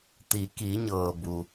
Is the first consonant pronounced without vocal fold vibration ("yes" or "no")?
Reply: yes